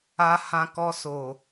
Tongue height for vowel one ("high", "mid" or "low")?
low